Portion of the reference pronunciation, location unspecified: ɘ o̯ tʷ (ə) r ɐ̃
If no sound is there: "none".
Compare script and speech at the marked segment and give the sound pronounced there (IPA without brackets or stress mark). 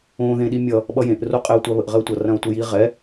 ʌ